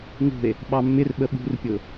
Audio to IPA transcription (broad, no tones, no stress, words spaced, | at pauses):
ŋṳe̯ | ɓɑmːɪrɓə ɓṳrpʲʊ